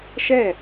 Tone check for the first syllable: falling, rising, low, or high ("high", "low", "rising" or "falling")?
falling